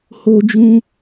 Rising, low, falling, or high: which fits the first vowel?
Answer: high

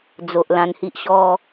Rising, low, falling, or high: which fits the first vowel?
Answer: low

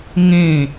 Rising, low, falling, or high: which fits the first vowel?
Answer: falling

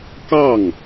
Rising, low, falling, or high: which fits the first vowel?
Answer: falling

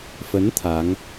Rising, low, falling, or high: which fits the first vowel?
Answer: rising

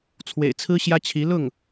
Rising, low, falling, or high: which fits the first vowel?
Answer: low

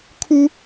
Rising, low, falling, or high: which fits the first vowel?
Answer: high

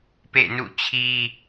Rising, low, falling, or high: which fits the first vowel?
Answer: falling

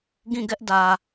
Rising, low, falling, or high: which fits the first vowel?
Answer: falling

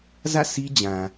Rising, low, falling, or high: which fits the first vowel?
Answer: falling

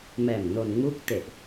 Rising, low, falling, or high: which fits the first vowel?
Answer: low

